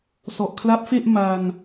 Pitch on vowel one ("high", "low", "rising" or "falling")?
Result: low